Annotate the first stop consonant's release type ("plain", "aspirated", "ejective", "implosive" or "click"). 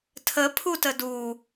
aspirated